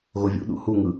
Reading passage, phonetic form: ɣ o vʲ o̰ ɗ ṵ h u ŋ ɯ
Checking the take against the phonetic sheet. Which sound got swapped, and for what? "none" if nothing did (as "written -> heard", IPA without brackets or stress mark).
o̰ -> ṵ